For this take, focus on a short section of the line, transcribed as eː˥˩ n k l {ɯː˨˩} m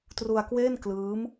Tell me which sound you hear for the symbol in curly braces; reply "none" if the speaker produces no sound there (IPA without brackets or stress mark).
ɯː˦˥